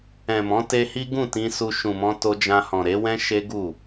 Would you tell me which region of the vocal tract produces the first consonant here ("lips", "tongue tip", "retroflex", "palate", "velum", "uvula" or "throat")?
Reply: lips